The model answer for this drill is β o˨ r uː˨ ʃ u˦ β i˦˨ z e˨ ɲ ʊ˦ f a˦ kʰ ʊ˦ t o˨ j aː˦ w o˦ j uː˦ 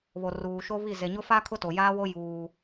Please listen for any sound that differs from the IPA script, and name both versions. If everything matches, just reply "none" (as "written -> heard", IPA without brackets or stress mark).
u˦ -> o˦